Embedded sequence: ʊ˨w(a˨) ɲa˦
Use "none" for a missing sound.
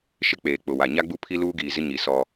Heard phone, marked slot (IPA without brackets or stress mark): a˨